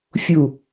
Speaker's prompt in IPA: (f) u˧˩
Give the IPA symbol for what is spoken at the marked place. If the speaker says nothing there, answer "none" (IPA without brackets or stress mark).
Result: fʲ